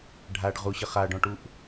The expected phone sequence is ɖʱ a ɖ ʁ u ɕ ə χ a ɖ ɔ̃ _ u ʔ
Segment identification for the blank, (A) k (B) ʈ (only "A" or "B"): B